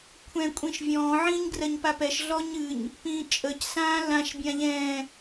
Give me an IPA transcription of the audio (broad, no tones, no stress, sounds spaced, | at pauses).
kʷʰ ɛ̃ kʷʼ ĩ ʃ vʲ ɔ̃ː ʕ ĩː ɲ ɡ r ɜ ɲ p a p ɛ ʃ ɮ ɔ ɲ ɨ ɲ | p ĩː t͡ʃʼ ə c s ãː l ã ʃ bʲ ã ʎ ɛ̃ː